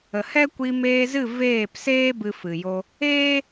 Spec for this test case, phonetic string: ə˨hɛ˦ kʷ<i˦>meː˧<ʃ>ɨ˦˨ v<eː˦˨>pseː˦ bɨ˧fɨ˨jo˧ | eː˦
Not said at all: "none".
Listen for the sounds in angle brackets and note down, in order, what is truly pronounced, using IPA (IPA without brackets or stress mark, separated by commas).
i˧, z, eː˦˨